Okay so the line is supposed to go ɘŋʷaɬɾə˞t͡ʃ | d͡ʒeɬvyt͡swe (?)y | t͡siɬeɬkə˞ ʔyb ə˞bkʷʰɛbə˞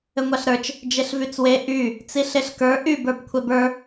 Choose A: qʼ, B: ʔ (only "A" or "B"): B